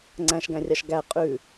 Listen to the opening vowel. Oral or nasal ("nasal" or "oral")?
nasal